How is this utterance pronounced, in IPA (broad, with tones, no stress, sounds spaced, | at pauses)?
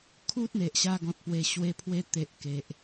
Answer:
kʰ u˦ t̚ n̪ e˨ ʔ ɕ a˧ ɡ ɔ̃˨ t̚ p w e˨˩ ɕ w e˧ pʰ w e˧ t̪ e˨ ʔ k e˨ ʔ